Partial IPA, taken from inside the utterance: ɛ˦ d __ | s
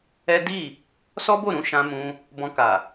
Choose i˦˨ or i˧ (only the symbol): i˦˨